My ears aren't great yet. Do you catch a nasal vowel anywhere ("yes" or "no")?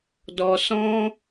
yes